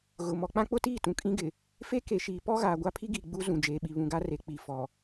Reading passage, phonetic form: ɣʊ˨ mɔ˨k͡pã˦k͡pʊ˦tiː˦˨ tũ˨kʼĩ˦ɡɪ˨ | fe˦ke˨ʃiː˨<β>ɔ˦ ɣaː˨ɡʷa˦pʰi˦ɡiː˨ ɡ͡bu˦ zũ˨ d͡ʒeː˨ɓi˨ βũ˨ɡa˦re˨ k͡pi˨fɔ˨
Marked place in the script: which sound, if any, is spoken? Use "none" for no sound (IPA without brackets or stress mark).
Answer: p